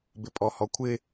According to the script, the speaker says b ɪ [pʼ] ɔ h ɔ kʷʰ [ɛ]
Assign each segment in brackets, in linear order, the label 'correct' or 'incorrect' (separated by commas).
correct, incorrect